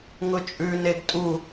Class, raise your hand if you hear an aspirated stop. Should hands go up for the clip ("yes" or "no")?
no